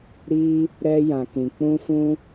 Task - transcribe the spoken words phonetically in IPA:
ɾ i˧ | ɾ ɛ˧ j ã˨ k ĩ˨ k͡p ũ˧ f ũ˧

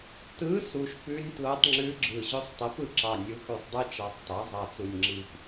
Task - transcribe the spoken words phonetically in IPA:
t ɯ˧˥ s u˨˩ ʃ p ʉ˧˥ nʲ t l o˧˥ tˤ ŋ͡ǁ ʉ˧˥ ɡ͡ǁ ɯ˨˩ ʑ ɵ˧˥ sˤ tˤ i˩˥ p ɯ˩˥ ǁ ɑ˨˩ nʲ u˩˥ x ʉ˨˩ sˤ dˤ ɯ˧˥ t͡ʃ ɑ˨˩ sˤ t ɑ˩˥ zˤ ɑ˨˩ t͡s u˨˩ nʲ ŋ͡ǁ i˨˩ p

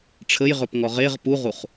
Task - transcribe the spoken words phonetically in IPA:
ʈ͡ʂʰ ə j ʁ ɵ p ŋ ɔ ʁ e ʁ p u ʁ u χ

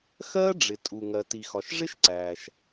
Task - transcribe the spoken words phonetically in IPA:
x ɜː˥ ɖ͡ʐ ɪ˩ tʼ u˩ ŋ ɜ˩ t i˩ x ɒ˩ ʃ ʐ ɪ˥ ʃ ǀ æː˩ ʃ

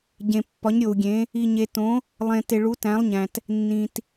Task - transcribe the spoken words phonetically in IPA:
ɟ ẽ˨ pː ɒ˨˦ ɲ ɾʲ o˨ u̯ ɡʲ ẽ˨˦ | i˨ ɲ e˨ t õ˨˦ | lˠ ẽ˨ t e˨ ɭ u˨˦ t æ̃˨˦ lˠ ɲ æ̃˨ t | nː ĩ˨ t

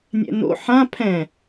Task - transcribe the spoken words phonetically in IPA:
nʲ ɛ̰ n o̰ ħ ã pʰ ɛ̃

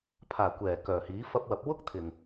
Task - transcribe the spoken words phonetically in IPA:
pʰ aː˨˩ kʷ ɛː˨˩ k œː˨˩ h iː˨˥ f ɐ˧ p̚ w ɐ˨˥ p̚ w ʊ˥ k̚ t̪ʰ ɪ˨ ŋ

